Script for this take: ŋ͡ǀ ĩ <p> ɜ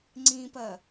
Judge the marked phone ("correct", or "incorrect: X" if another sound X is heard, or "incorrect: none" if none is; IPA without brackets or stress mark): correct